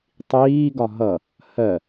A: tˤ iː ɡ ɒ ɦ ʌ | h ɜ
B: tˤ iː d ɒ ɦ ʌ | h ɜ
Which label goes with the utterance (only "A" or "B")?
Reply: A